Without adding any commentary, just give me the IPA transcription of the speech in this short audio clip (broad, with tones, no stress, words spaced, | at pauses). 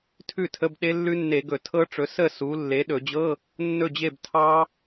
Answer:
tʰʉ˥˨tʰə˧˥˧bɗe˦˥ lːʉ˦˥nːe˧˩˧ ɡɵ˧˩˧tʰɤ˦˥ʈ͡ʂɵ˨˦ sə˥˨ su˨˦ lːe˨˦ɗɵ˧˩˧d͡ʑɤ˧˥˧ | nːɵ˥˨d͡ʑe˥˨b tʰɑ˦˥